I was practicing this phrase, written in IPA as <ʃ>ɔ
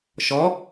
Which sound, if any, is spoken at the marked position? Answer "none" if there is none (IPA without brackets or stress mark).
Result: ʃ